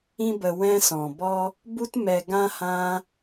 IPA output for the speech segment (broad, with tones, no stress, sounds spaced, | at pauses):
ĩ˦ b ə˧ w ɛ̃˦ s ɔ̃˨ b ɔ˦ | b u˦ t m ɛ˧ ɡ ã˦ h ã˦